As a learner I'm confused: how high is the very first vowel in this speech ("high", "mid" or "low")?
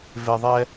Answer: mid